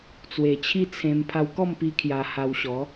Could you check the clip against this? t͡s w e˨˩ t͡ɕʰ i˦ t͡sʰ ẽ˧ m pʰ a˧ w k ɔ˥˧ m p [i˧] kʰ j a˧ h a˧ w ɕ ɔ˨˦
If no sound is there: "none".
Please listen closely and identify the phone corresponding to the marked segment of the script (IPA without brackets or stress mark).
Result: i˧